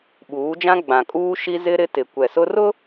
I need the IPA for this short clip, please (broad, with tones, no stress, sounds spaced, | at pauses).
ɓ uː˨˦ d͡ʒ ã˦ ɡ͡b ã˨ kʼ uː˦ ʃ i˦ z ɪ˦ ɾ ɪ˦ t ɪ˨ kʷ ɛ˨ s ʊ˦ r ʊ˦